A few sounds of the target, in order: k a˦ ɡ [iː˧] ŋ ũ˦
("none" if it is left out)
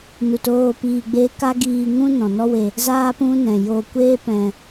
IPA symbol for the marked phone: iː˧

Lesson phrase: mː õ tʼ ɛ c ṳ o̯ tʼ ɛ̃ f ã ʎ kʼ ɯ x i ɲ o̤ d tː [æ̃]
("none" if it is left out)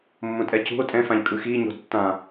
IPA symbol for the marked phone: ã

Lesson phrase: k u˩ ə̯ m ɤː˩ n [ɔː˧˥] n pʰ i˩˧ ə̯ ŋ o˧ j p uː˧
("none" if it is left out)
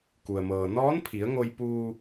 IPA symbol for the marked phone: ɔː˧˥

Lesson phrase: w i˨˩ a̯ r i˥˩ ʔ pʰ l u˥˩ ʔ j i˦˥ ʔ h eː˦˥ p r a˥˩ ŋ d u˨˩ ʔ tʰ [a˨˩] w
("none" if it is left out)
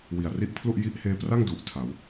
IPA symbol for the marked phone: a˩˦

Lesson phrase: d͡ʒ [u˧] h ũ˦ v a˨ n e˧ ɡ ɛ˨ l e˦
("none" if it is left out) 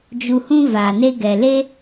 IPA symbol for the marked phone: u˧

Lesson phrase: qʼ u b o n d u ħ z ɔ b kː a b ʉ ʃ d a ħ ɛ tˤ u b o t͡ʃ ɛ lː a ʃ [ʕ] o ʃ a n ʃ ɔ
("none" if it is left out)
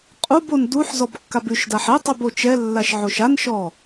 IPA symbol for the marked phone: ʕ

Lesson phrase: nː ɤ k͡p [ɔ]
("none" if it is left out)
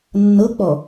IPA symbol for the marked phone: ɔ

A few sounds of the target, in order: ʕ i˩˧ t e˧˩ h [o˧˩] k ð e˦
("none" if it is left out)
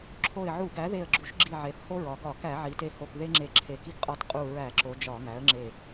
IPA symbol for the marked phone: o˧˩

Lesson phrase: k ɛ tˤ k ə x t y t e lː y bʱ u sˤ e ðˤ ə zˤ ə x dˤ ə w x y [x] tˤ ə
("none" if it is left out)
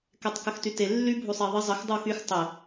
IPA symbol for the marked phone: x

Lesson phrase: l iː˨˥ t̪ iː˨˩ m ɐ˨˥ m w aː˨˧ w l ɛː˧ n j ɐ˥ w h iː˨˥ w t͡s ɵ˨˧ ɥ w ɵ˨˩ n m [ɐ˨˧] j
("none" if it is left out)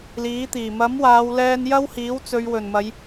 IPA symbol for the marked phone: ɐ˨˧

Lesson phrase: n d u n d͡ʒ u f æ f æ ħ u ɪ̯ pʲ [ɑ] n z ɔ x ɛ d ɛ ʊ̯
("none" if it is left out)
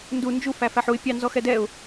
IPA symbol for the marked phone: ɑ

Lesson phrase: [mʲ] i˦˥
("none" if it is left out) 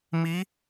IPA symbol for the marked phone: m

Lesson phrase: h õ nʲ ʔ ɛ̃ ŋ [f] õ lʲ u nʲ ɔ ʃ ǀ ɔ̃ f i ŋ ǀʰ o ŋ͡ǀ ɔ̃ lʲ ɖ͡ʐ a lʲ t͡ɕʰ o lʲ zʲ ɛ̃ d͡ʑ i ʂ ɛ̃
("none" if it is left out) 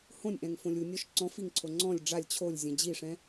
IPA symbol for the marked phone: f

